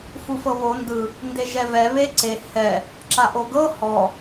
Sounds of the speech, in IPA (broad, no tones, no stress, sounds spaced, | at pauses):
f u f ɤ β o n d ɯ | n d e ʒ ɛ v ɛ β e ǀ e h ɛ | ǁ a ʔ o ɡ ɤ h ɔ